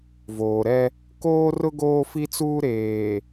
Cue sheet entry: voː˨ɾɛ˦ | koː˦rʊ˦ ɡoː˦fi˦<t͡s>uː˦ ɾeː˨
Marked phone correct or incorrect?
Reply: correct